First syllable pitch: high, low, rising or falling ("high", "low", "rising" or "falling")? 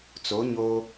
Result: rising